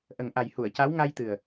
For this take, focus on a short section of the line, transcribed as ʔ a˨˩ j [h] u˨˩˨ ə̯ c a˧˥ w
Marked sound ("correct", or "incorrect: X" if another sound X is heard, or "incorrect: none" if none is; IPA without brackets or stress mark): correct